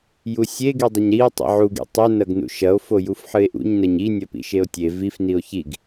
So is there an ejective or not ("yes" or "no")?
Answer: no